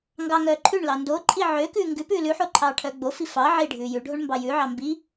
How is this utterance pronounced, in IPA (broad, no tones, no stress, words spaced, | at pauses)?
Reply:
ŋɡɑ ŋœːǃʰʉɳlɑ ndoǃʼi ʕøkʉː ŋɡʉ pʉːlʉħo ǃʰɑːʈʰœːɡ͡bofi fɑ ʕi ɖʱʉːjʉɖʱoɳ mbɑjʉʕɑ mbi